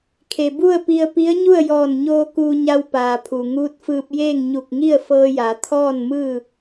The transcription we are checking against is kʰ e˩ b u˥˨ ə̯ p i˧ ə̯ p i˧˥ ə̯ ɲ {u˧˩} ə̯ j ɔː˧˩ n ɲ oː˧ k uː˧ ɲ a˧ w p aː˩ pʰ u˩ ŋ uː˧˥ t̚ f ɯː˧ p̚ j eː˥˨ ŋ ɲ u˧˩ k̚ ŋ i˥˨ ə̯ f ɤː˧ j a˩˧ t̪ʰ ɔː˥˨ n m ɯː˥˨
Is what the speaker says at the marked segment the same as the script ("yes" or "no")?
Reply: no